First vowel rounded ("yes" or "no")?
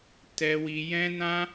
no